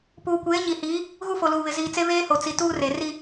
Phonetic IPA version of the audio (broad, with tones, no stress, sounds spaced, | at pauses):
p uː˨ kʷ eː˨˦ ɲ i˨ h iː˨˦ | ɣ u˦ f o˨ l uː˨ β ɪ˨ z iː˨ t͡s e˦ β eː˦ h o˨ t͡s i˨ t uː˦ r e˨ r i˦